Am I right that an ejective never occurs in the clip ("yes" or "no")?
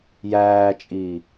no